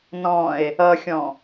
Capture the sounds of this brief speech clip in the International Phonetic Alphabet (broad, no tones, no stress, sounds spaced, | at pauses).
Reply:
n ɔ̃ e̯ | ʌ xʲ ɔ̃